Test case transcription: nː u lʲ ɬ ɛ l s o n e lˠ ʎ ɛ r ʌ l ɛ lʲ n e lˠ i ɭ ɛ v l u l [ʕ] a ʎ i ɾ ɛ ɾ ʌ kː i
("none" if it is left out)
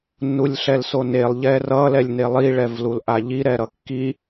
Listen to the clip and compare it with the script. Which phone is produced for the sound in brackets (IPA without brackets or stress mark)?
ʔ